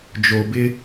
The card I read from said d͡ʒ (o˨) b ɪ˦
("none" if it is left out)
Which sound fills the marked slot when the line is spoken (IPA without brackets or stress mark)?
o˨